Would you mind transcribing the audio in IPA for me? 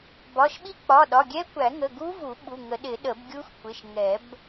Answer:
bɒ˩˧˩ʃ ɓi˦˥k͡pɒ˩˧˩ɗɒ˩˧˩ɡʲɛ˦˥ kʷæ˨˩˦ŋə˩˧˩ ɡu˦˥vu˨˩˦ ɓu˩˧˩ŋə˨˩˦ɗɪ˨˩˦ ɗə˨˩˦bɡʲu˦˥x kʷɪ˩˧˩ʃŋɛ˨˩˦b

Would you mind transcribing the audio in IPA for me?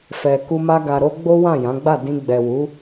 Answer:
fɛ˨ku˧ ma˧ɡa˨ɾo˧ ɡ͡bo˦wã˦˨jã˨˦ɡ͡ba˦˨ dĩ˧ ɡ͡bɛ˨wu˨˦

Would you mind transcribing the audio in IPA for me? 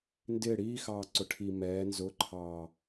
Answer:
ndɪ ɽiː xɑːǀʊʈʰi mɛː nzʊǃʰɑː

